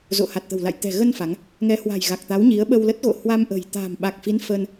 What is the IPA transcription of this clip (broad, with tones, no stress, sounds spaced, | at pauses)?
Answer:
z o̰˧˨ h a˨˩ t̚ t̪ ə̤˨˩ w l a̰˧˨ j t̪ ɛ̤˨˩ ɣ ə˧ n f a˨˦ ŋ | ŋ ɛ˨˦ h w a̤˨˩ j ɣ a˨˩ k̚ t̪ a˨˦ w ɲ i˨˦ ə̯ ɓ ə˧ w l ə˦˥ t̚ ɣ o̰˧˨ h w a˧ m ʔ ə̤˨˩ j t̪ a̤˨˩ m ɓ a˨˩ k̚ f i˨˦ n f ə˧ n